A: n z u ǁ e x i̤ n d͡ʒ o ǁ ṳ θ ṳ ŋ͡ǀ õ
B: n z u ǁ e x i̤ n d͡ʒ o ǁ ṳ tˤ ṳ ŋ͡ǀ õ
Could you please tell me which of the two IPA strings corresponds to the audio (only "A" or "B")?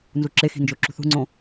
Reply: A